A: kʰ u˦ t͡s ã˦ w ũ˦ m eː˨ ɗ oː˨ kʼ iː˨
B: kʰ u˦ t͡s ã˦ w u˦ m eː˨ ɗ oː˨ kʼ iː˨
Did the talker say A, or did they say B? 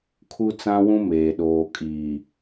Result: A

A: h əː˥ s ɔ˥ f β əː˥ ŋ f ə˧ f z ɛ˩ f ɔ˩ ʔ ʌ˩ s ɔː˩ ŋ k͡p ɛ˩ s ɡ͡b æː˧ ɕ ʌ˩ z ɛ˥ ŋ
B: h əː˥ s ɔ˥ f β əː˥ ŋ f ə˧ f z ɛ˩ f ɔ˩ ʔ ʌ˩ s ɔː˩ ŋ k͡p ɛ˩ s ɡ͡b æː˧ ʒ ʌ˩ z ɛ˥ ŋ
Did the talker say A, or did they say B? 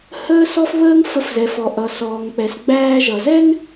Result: B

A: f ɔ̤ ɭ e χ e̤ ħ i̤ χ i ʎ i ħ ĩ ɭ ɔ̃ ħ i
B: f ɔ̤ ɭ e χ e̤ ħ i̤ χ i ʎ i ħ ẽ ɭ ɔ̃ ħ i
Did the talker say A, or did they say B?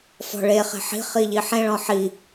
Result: B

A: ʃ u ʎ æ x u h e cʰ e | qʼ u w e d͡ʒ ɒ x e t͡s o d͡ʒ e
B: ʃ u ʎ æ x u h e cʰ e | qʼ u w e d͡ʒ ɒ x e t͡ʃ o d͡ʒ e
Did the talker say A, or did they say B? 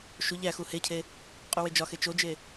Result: B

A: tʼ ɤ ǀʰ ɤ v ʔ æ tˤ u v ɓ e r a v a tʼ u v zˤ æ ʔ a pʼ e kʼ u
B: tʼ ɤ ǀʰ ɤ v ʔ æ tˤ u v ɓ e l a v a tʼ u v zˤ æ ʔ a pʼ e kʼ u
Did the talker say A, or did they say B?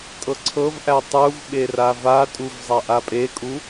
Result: A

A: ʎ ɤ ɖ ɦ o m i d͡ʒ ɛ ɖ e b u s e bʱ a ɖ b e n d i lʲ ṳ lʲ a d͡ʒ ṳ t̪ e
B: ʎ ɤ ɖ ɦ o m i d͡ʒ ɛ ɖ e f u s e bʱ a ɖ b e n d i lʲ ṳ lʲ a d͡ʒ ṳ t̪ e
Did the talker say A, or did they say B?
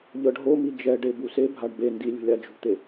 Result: A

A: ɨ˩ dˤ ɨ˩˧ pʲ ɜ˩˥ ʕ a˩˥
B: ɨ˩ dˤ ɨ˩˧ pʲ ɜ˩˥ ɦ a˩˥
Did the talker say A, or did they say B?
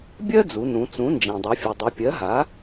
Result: B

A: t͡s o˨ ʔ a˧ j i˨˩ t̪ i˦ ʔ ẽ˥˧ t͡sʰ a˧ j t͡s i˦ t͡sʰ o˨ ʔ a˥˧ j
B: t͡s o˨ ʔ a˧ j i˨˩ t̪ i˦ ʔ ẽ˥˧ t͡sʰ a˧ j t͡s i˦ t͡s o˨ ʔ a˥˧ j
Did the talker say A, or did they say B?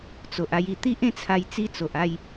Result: B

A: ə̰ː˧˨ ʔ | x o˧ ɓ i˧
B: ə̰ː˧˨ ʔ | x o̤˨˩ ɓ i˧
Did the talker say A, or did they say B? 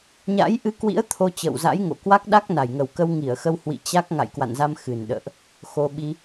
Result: A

